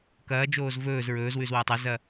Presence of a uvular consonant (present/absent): absent